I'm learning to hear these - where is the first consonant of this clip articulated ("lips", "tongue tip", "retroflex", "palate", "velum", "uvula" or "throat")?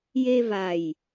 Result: palate